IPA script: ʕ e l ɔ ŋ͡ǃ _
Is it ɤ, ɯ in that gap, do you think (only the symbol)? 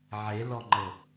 ɤ